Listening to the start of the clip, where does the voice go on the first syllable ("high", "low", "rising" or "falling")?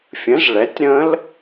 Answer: rising